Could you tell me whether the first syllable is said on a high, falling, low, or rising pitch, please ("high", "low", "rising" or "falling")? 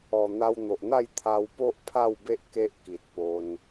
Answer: low